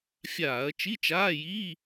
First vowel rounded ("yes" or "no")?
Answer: no